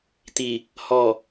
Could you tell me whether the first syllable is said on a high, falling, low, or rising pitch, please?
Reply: low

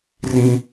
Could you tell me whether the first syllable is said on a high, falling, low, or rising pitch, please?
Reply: high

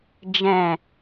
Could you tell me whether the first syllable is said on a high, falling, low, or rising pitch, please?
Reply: low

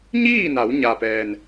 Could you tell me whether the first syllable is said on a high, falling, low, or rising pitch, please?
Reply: falling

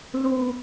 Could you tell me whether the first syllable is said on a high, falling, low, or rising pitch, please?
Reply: high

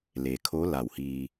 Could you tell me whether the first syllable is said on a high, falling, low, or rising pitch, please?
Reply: low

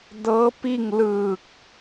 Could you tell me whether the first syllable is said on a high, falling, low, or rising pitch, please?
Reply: rising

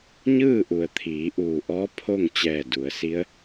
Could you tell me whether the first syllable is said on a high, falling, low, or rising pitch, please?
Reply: falling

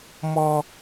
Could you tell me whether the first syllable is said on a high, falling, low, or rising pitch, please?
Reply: high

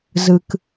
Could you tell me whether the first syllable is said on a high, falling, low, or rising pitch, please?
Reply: low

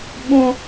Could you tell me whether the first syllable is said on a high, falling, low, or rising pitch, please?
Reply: high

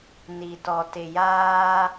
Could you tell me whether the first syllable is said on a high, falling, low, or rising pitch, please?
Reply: low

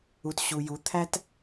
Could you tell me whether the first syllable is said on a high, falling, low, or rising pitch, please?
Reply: low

